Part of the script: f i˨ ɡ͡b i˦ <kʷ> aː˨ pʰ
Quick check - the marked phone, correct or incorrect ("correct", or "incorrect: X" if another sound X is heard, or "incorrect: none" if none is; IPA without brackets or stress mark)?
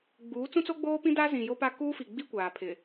correct